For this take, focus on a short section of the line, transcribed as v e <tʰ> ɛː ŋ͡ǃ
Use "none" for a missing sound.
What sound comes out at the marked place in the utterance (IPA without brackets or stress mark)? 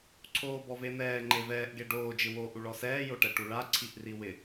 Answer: n̪